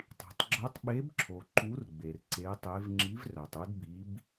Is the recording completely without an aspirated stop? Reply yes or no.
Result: no